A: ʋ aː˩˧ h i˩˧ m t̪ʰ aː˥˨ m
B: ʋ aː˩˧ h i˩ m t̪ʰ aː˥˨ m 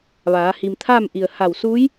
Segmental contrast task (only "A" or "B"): B